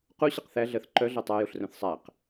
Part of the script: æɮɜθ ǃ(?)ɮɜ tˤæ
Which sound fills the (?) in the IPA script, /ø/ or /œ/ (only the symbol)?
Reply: œ